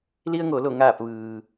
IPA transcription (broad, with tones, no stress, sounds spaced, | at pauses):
l i˧ ə̯ ŋ o˩˧ l o˧˩ ŋ aː˧˩ p̚ ʋ ɯː˩